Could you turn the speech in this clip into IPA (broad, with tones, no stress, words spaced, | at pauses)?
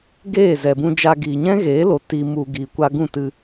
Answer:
ɡeː˦˨zɛ˨bũ˧d͡ʒa˧ ɡiː˨ɲɛ̃˦ɣeː˨˦lo˨ ti˨ mu˨ ɡiː˨kʷa˧ ɡũ˦˨tɨ˧